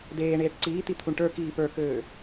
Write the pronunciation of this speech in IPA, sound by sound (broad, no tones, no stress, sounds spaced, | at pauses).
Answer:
d̪ eː ɳ eː ʈ ǀ iː t̪ i t̪ʰ u ɳ ʈ ə˞ k iː p ə˞ k øː